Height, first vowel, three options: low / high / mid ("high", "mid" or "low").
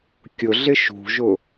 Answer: high